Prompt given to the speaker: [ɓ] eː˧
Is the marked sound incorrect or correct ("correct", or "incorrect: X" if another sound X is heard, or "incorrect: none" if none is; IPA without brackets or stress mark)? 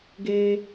incorrect: ɡ